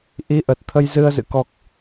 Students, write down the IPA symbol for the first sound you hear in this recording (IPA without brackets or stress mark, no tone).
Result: ʔ